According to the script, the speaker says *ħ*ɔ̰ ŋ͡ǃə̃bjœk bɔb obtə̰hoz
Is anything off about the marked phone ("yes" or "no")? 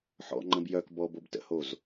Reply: no